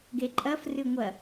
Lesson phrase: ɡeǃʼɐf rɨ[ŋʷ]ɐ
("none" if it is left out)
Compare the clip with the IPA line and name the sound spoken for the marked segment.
ŋʷ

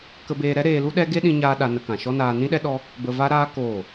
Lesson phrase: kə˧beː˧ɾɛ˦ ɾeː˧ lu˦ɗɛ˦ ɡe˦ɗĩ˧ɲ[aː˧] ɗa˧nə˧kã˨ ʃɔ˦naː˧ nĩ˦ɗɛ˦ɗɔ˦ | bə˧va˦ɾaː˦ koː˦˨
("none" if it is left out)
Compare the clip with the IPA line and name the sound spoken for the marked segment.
aː˧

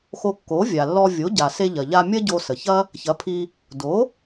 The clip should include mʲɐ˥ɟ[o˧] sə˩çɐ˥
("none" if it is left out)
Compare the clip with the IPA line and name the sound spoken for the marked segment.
o˧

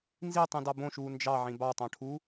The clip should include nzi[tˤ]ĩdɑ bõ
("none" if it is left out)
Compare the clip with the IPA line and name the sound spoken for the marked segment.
tˤ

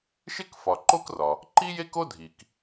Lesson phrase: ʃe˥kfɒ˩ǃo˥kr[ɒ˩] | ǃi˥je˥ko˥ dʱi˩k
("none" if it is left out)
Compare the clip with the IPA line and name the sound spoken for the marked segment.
ɒ˩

